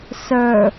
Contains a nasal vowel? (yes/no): no